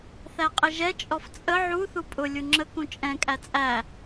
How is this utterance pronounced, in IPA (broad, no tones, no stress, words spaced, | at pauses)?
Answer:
θæqʼɪʒɛ t͡ʃʼɔft͡sʼə ʕu θupʼʊ lʲuŋ͡ǁə kũt͡ʃʼɛ̃ kʼæt͡sʼæ